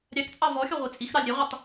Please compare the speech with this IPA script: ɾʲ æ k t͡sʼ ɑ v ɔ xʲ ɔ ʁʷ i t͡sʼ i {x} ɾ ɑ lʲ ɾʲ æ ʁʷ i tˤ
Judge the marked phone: correct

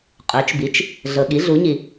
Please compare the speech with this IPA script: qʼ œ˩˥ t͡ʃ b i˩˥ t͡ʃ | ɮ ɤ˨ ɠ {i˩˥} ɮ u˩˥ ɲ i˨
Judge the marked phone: correct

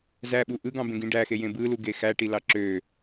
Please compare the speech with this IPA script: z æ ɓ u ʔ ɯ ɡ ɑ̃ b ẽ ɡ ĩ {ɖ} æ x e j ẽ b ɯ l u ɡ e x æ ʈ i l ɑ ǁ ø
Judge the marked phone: correct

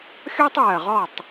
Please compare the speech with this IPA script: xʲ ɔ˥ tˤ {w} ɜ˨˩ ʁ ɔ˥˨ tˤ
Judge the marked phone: correct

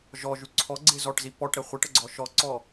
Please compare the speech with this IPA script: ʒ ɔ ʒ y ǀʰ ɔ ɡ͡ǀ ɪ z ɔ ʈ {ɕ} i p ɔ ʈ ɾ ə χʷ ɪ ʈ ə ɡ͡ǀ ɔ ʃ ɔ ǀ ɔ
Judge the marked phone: incorrect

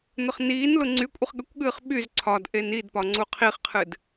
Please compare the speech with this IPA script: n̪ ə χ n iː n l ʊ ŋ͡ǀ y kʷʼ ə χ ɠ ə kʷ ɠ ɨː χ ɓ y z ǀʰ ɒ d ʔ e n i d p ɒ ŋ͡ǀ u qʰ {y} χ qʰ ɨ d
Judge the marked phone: incorrect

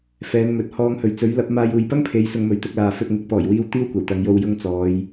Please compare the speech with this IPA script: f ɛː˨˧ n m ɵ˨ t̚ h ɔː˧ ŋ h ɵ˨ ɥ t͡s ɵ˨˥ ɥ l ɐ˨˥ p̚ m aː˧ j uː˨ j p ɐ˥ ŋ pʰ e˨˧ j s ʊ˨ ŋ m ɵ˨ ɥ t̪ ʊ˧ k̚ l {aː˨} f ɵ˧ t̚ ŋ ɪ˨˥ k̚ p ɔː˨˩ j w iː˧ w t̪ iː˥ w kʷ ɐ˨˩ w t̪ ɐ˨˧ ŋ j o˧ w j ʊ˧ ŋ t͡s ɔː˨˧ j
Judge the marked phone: correct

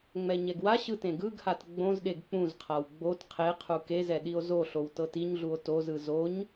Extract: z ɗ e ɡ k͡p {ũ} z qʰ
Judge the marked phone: correct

